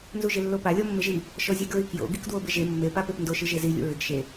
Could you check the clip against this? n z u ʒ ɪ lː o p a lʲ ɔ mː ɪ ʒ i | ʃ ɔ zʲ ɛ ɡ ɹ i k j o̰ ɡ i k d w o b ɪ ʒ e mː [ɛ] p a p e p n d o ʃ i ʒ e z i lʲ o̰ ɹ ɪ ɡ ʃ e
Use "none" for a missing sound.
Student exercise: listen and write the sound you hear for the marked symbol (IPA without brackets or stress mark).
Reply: e